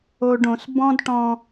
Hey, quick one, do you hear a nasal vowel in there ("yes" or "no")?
yes